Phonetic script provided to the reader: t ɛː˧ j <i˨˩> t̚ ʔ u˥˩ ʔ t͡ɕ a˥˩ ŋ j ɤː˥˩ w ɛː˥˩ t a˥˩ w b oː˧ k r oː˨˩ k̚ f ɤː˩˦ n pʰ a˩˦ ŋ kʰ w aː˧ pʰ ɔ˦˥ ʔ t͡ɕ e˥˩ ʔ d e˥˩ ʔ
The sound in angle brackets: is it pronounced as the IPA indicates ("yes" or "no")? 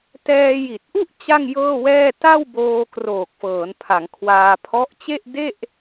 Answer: yes